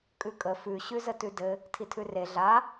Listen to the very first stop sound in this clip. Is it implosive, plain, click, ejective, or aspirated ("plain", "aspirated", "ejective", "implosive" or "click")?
ejective